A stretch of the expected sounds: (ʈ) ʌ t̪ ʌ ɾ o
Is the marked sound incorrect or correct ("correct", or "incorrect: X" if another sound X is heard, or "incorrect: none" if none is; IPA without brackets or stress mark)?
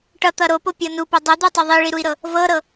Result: correct